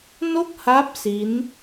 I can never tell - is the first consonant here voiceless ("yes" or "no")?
no